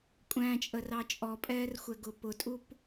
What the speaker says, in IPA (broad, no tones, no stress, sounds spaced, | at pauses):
kʷʼ æ̃ t͡ʃʼ ə r ɑ t͡ʃʼ ɔ pʼ ɛː r xʷ ɛ ɡ ʊ p ʊ tʼ u p